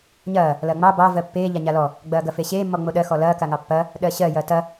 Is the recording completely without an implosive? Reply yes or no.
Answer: no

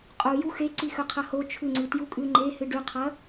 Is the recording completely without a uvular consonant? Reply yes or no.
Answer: no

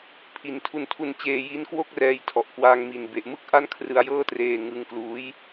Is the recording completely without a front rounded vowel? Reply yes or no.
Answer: yes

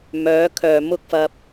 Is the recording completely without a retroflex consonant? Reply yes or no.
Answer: yes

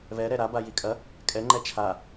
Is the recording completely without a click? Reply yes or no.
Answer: no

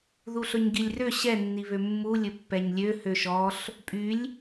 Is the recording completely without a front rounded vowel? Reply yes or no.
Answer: no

